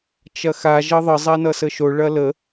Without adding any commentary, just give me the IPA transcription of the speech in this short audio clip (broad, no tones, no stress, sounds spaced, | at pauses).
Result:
t͡ʃ ɐ x a ʒ ʌ ðˤ ə zˤ a n ʌ s ə ʃ o ɭ ɐ l ə